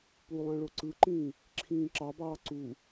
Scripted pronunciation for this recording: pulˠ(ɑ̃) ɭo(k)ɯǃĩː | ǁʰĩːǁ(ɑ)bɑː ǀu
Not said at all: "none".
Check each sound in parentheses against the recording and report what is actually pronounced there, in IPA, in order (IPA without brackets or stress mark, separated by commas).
ɑ̃, ǀ, ɑ